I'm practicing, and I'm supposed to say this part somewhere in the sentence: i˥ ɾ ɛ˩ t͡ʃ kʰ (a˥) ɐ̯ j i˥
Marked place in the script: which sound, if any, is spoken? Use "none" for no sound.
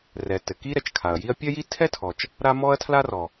a˩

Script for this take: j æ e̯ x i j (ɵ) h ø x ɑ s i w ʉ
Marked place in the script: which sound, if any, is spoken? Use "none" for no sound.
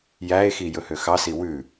ɵ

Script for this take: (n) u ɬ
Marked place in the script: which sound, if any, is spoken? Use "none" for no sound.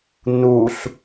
n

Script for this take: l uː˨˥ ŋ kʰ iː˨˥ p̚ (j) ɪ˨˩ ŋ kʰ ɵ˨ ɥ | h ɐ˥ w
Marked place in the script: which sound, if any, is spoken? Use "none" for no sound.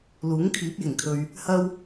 j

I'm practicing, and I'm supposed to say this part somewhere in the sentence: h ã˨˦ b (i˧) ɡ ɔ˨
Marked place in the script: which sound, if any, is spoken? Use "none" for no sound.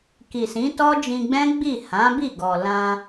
i˦˨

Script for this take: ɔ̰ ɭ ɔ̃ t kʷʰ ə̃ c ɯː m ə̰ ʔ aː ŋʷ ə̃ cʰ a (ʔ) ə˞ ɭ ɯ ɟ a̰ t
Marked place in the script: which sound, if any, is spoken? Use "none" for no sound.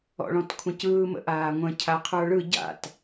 qʰ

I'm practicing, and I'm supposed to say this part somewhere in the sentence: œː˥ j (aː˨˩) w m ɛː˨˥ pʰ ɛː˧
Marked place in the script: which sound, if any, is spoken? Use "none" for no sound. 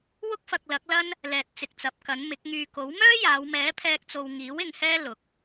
aː˨˧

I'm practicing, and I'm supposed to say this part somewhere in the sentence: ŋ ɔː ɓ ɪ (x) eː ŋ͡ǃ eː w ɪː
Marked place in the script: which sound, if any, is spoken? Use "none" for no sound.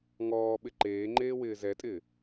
ǃ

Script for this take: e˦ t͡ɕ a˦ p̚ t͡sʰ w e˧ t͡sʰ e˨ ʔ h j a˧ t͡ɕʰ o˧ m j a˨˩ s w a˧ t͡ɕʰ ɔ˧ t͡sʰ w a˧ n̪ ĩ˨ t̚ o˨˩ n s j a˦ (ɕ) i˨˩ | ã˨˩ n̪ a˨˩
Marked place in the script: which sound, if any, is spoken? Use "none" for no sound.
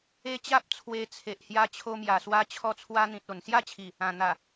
t͡ɕʰ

